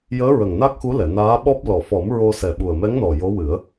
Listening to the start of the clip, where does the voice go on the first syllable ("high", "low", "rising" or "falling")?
rising